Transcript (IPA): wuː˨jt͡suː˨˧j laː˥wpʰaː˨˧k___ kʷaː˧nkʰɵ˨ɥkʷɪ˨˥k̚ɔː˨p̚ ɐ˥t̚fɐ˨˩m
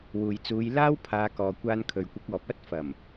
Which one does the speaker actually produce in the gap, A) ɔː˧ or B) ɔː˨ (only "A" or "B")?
B